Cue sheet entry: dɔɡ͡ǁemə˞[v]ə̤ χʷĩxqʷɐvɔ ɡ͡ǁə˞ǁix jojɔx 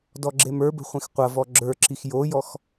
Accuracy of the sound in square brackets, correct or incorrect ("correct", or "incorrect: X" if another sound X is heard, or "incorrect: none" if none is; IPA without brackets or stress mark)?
incorrect: b